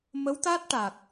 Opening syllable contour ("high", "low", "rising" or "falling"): rising